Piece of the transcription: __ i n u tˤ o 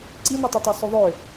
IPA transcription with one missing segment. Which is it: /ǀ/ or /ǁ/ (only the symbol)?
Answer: ǀ